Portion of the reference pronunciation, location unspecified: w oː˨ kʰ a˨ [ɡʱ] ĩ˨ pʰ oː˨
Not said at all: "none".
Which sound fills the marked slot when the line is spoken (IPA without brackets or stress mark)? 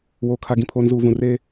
ɡ